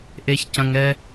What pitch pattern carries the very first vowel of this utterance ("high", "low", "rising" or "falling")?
low